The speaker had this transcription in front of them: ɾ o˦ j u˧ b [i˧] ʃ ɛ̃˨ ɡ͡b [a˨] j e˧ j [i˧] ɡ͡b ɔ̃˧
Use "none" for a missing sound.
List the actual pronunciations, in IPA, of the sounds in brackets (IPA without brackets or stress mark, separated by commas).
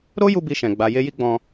i˧, a˨, i˦